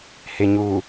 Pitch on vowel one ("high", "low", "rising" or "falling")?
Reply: low